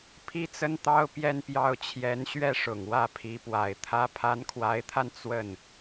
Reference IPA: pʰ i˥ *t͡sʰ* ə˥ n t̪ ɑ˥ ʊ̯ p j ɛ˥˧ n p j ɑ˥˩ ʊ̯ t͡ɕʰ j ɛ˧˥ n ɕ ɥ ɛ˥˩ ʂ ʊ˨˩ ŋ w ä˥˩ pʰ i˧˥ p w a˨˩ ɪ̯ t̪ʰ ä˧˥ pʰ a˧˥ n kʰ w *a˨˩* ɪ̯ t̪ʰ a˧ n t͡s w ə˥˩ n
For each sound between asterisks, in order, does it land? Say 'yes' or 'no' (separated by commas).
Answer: no, no